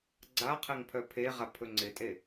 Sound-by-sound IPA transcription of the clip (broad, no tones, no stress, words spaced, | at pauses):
ɡ͡ǀaqʰɛŋ pʰœpʰeʁa pʰɵŋ͡ǀɪtʼe